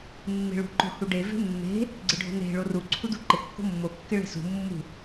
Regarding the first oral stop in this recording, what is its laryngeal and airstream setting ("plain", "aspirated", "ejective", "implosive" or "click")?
click